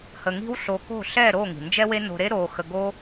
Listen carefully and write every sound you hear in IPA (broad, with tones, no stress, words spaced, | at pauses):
hə˧ŋi̤˥wɬo˧ ko̤˥˩ɬɛ˥˩ɾo˥˩ ŋi̤˩nd͡ʒɛ˥we˥ no̤˧ɾe˥ ɾoː˧xə˧ ɡo˥